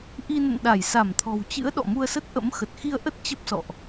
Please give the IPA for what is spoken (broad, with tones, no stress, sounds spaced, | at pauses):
ʔ i˧ n ə̰˧˨ n ɗ a˧˩ j s a˧˩ m t̪ʰ ɔ̤˨˩ w t͡ɕ ɨ̰˧˥ ə̯ ɗ ɔ̰˧˨ m u˧ ə̯ s ə˦˥ t̚ ʔ ə̰˧˥ m x ə˨˩ t̚ x i˧ ə̯ ʔ ə˦˥ t̚ t͡ɕ ə˦˥ p̚ s ɔ̰˧˨ ʔ